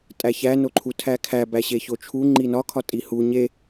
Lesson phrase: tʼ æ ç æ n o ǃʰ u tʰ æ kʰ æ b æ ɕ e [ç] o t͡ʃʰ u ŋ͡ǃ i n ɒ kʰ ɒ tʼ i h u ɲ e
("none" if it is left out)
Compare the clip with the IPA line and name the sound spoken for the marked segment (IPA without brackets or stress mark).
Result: ç